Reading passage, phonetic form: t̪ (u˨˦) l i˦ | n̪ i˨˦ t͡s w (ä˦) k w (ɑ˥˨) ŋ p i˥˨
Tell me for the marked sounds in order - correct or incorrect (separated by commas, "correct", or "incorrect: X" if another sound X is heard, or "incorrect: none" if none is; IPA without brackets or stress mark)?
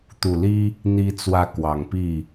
incorrect: u˨˩, incorrect: ä˨˦, incorrect: ɑ˨˩